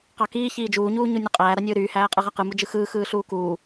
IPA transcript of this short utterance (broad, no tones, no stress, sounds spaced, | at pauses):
q ɑ k iː ç iː d͡ʒ uː ɲ uː ɲ u nʲ u qʼ æː ɾ ɑ nʲ ɯː ɾ yː h æː qʼ ɯ ʁ æ q ɯ m u d͡ʒ ɯ x ɯː x ɯː ɬ uː k uː